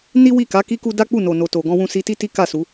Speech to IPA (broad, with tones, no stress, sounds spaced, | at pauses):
n i˦ w i˦˨ k a˨˦ k i˦ k u˦ d a˦ k͡p u˦˨ n o˨ n o˨ t o˨ ɡ ɔ̃˧ w ũ˧ s i˧ t i˦ t i˦ k a˦˨ s u˨˦